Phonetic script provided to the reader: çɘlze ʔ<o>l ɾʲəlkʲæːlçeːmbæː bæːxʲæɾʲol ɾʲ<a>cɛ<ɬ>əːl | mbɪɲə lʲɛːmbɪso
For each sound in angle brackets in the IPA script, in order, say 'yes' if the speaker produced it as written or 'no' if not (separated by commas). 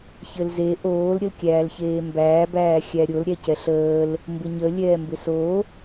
no, no, yes